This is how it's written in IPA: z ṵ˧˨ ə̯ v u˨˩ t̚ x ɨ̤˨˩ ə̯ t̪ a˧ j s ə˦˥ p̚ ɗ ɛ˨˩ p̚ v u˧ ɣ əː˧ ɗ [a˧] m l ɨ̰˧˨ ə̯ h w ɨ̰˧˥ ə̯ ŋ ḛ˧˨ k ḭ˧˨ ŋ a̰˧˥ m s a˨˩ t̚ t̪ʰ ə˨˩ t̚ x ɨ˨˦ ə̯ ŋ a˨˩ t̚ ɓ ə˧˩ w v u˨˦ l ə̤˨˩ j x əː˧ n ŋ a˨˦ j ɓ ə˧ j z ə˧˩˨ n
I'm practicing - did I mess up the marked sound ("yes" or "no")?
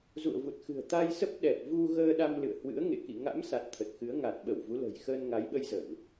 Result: no